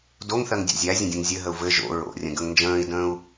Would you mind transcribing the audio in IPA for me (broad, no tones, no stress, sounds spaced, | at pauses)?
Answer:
d o ŋ θ ɜ ŋ dʲ a̰ zʲ æ zʲ ə̃ dʲ ə̃ ŋ zʲ ɘ ɦ ə u̯ v ɘ ʒ o̰ ɹ o̰ rʲ ə̃ ɡ ə ŋ n d͡ʒ ə̃ː i̯ d ə̃ː u̯